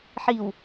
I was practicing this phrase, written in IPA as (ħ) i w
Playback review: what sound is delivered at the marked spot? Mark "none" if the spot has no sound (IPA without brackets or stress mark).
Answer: ħ